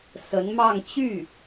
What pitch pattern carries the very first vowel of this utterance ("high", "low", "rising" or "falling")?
rising